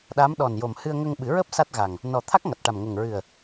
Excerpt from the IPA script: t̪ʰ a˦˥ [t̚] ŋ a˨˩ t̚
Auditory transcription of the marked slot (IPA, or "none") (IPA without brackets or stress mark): k̚